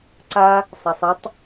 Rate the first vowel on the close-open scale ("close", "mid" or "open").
open